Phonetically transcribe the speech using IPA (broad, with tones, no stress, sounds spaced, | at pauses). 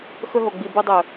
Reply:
x ɵ˧ ɦ o˨ ɡ͡b i˨ b ɨ˧ dˤ ɵ˨